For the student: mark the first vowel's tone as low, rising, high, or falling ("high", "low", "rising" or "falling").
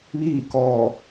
falling